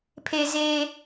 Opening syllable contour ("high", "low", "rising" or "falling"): low